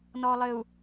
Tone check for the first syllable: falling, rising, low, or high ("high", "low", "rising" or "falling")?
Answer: low